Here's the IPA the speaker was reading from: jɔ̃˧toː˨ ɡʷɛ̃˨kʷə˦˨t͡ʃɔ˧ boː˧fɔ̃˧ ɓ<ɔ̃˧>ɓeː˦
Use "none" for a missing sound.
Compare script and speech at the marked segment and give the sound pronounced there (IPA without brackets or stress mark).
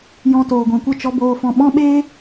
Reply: ɔ̃˦